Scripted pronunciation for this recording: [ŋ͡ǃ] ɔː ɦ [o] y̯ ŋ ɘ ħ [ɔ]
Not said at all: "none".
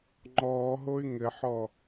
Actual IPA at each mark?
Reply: ŋ͡ǃ, o, ɔ

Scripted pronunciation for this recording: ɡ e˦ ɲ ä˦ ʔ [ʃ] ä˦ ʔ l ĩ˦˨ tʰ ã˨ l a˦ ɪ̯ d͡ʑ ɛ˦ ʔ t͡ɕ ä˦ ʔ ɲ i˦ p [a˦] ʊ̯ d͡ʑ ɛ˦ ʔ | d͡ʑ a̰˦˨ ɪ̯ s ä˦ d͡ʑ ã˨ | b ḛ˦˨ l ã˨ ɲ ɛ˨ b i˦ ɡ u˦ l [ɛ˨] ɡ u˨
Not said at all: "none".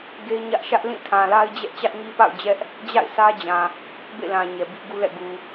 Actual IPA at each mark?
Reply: ʃ, a̰˦˨, ɛ̰˦˨

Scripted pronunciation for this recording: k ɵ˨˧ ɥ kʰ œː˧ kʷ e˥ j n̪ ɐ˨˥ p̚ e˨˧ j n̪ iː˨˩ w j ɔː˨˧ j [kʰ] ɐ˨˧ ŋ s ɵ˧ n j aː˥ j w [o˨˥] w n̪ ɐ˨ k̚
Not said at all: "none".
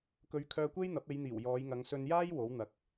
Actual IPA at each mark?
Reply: ŋ, o˨˥

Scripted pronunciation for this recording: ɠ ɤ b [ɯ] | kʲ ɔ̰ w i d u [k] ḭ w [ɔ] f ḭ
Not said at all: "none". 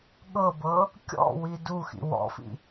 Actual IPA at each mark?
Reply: ɤ, x, ɔ̰

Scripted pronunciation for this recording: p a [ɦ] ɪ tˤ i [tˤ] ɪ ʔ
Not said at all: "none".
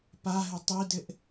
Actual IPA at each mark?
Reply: ɦ, d

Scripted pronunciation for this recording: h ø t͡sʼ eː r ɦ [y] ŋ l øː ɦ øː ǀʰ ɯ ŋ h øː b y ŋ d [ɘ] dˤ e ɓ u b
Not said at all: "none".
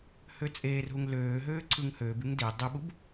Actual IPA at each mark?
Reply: u, e

